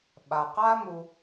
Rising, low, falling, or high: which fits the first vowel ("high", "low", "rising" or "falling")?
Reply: low